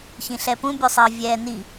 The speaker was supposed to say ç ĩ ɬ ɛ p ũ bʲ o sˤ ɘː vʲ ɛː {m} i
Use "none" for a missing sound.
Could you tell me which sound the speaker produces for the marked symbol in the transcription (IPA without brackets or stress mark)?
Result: n